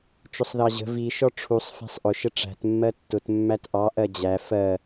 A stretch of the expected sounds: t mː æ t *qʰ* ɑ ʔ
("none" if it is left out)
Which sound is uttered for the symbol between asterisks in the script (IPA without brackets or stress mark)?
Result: ʔ